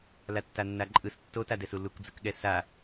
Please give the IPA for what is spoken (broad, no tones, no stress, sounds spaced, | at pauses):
l a tː a nː a ǃʼ ɯ s tː o t a d ɛ s u l u k d͡z ɯ k ɠ ɛ s a